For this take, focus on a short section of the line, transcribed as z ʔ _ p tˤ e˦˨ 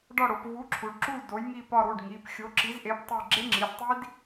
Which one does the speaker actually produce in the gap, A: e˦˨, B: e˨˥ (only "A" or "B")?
B